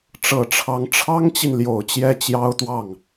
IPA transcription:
ʈ͡ʂ ɤ˨˩ ʈ͡ʂʰ ɑ˧˥ ŋ ʈ͡ʂʰ ɑ˥ ŋ t͡ɕ i˨ n l j o˨˩ ʊ̯ t͡ɕ j ɛ˥˩ t͡ɕ j ɑ˥ ʊ̯ t̪ w ɑ˥˩ ŋ

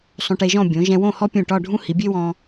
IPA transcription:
sˤ õ˧ ʈ e˧ ʒ ɔ̃˥˧ bʲ õ˩˧ ʒ ɛ̃˧ w õ˥˧ h ɔ˥ pʲ ũ˧˩ ʈ ɒ˥˧ ɖʱ ũ˥ h i˩˧ bʲ e˥ w ɔ̃˧

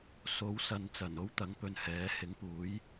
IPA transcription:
s o˨˥ w s ɐ˨˧ n t͡s ɐ˨˩ n o˥ w t̪ ɐ˨˥ ŋ p ɵ˨ n h ɛː˨˥ h ɪ˨˥ ŋ p uː˨˥ j

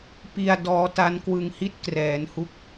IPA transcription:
p i˧ a̯ d ɔː˦˥ t a˦˥ n k w ɯ˧ ŋ h i˥˩ t̚ k r ɛː˩˦ n h u˦˥ k̚

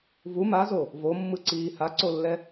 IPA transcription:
v u m a z o | v o mː ɯ ǀ iː h a ǀ o lː ɛ

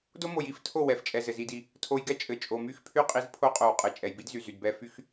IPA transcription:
d o˦ m o˨ j i˦˨ f tʰ o˦˨ w ɛ˨˦ f t͡ʃʼ ɛ˨ z ɘ˨ z i˧ d i˧ | tʰ o˧ j ɡ ɛ˦ t͡ʃʼ ɘ˨ t͡ʃʼ o˨ m y˦ x pʰ y˦ qʼ i˧ z pʰ o˦ qʼ o˨ w qʼ ɘ˨ t͡ʃʼ ɛ˨ j b i˦ d z y˨ z y˨ d b ɛ˧ f y˦ x

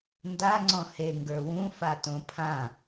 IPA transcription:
n d a ŋ͡ǀ ɔ̃ h e ŋ ɡ ə˞ w ũ f a t õ pʰ ã

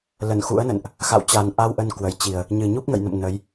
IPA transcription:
l ə˧˩ n x ṵ˧˥ ə̯ n ə̰˧˨ n ʔ | x a̰˧˨ w t͡ɕ a˨˩ n ʔ a˧ w ʔ ə˧ n k w ə˧˩ j t͡ɕ i˨˩ ə̯ | ɲ ɨ˨˩ ɲ u˦˥ p̚ ŋ ə̰˧˨ j n ə̰˧˨ m n ə˨˦ j

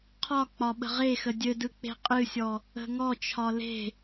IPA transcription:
qʰ ɒ k͡p ɒ ɓ ə̤ ʁ e x ə dʲ ɘ d ɯ k͡p e̤ qʼ ɨ sʲ ɔ | ə̤ ŋ ɔ t͡ʃʰ ɒ l e̤

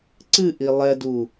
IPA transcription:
ǀ ɨ ʔ i lˠ ɛ d u

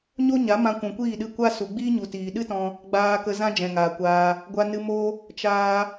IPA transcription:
ɲ o˦ ɲ a˨˦ m ã˧ kʷ ũ˨ kʷ iː˦˨ ɗ ɨ˦˨ kʷ a˦ s u˨ ɡ͡b iː˦ ɲ u˨ t iː˨ ɗ ɨ˦ t ɔ̃˧ | ɡ͡b aː˨ k ə˧ z ã˦ d͡ʒ ɛ̃˨ ŋ aː˨ kʷ aː˧ | ɡʷ a˧ n ɨ˧ m o˦ | t͡ʃ aː˧

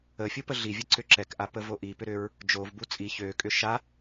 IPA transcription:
ə fʲ u p ə ɮ i vʲ ə ǀ ʏ ǁ ɛ k ʔ a p ə v o ʔ i p ʏ ɾ ʏ ɹ | d͡ʒ o v b u t͡sʼ i ç ø kʼ ʏ ʃ a

